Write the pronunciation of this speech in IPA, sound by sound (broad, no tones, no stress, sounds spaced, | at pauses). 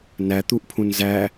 n æ t̪ u ʔ pʰ ũ n z æ